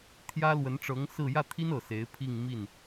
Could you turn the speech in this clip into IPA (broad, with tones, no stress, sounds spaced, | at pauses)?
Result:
t̪ʰ j ä˥ l w ə˧˥ n ʈ͡ʂ ɤ˧˥ ŋ s ɹ̩˥˧ j ä˥˩ t̪ʰ i˥ n ɤ˨˩ s e˧˥ ɪ̯ pʰ i˥˧ ŋ m i˥˩ n